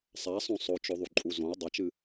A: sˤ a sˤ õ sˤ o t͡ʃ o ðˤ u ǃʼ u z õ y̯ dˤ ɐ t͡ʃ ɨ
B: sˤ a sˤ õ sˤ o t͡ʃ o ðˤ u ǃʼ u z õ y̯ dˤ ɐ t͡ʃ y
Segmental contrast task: A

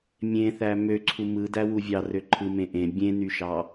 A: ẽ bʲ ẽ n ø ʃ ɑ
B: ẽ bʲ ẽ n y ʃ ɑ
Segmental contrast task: B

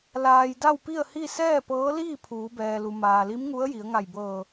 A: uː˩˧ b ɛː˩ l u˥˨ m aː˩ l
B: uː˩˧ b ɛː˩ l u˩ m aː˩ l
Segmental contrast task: B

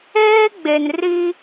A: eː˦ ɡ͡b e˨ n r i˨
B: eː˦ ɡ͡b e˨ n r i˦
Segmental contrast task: B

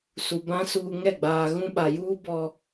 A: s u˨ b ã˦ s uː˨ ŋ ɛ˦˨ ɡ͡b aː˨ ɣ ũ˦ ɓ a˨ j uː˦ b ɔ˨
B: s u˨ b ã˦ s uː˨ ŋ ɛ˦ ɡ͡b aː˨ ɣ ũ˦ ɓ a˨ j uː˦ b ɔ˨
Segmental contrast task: A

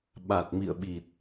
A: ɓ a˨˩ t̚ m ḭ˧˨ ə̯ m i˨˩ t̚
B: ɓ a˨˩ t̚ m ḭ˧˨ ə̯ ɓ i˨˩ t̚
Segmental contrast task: B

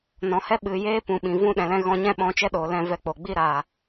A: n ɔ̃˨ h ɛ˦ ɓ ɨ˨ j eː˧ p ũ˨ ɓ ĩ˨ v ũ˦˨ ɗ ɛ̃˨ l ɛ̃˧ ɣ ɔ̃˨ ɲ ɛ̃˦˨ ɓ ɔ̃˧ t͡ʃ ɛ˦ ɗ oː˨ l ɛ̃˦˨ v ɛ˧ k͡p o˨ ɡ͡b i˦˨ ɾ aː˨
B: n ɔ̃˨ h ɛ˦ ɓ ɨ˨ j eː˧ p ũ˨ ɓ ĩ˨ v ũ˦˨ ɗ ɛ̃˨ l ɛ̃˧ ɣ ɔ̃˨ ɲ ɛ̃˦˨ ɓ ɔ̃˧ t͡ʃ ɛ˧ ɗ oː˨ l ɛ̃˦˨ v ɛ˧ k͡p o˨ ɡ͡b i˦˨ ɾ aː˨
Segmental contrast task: A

